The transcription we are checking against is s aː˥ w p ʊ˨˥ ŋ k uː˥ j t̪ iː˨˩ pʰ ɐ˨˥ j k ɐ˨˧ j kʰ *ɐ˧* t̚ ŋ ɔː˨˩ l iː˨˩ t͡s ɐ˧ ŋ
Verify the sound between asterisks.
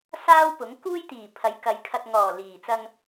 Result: correct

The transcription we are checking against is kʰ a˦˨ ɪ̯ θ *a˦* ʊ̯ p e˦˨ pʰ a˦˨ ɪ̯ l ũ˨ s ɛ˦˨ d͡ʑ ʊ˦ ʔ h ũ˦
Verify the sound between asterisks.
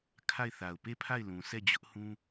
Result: incorrect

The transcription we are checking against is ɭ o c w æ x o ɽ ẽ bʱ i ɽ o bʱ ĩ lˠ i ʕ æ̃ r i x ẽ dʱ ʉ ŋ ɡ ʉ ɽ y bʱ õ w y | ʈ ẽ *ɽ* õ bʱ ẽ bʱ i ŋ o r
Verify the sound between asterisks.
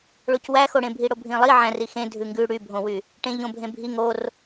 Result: incorrect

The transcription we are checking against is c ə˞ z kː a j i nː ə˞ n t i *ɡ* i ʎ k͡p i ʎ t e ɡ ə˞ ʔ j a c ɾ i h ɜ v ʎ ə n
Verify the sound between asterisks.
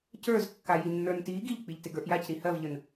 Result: correct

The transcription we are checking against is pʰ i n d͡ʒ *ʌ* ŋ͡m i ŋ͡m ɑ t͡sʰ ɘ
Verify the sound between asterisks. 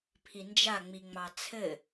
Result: incorrect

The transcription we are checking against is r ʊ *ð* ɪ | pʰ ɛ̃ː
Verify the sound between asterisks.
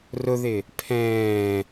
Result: correct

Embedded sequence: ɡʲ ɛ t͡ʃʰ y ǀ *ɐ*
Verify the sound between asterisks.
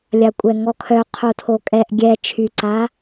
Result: incorrect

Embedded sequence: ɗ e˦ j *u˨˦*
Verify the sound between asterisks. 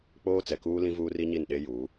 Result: incorrect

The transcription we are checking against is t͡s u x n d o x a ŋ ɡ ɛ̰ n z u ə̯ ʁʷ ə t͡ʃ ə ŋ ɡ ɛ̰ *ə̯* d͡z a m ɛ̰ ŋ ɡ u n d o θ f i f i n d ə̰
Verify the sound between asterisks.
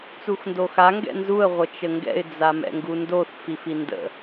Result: incorrect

